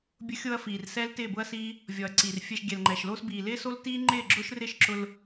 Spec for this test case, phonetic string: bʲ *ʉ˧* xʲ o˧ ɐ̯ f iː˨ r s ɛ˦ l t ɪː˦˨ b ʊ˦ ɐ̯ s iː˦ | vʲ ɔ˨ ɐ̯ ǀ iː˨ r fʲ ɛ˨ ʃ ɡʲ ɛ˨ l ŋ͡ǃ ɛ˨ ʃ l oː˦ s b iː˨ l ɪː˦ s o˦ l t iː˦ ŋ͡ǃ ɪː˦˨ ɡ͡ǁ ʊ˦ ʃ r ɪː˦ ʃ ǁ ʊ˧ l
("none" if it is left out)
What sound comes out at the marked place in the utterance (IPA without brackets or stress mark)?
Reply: ʊ˧